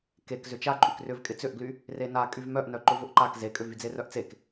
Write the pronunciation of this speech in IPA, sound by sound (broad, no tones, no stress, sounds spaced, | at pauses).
k e k z ʏ t͡ʃ a ǃʼ y k r ʏ v kʼ ɪ t͡s ʏ ʔ ɡ l y | r e n a kʼ y v m œ ʔ n œ ǃ ʊ v ʊ ʔ ǃ a k z e kʼ ʏ v y d͡z e r œ ʔ t͡s e k